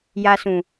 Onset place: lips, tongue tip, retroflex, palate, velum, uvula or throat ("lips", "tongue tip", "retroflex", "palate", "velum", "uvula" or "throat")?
palate